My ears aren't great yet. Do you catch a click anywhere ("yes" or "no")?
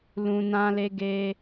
no